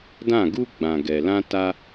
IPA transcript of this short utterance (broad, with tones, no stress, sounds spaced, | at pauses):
d ã˦˨ ɡ u˦ ɡ͡b ã˨ ɡ ɛ˨ l ã˦ t a˦